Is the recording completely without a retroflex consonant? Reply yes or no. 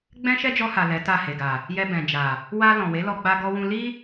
yes